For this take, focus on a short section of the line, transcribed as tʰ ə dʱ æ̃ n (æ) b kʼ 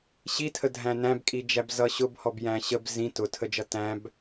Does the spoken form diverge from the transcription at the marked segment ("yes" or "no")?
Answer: yes